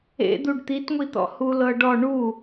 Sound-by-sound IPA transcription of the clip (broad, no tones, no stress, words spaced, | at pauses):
ḛ d̪uɖt̪itŋʷit̪ɔ̰ hulɤɖɔ ɳu